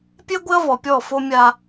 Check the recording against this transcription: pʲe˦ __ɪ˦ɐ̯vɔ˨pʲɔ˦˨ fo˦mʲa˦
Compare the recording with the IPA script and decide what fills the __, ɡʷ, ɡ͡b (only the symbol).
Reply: ɡʷ